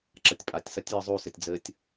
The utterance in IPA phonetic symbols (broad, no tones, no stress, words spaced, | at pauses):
ǁɐtʲpʼatʲsɐtʲ jɨzˤusɘtʲ d͡zɘtʲ